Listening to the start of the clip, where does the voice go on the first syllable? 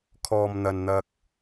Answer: low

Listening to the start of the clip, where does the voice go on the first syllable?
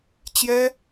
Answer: high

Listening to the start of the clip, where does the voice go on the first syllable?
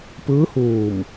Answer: rising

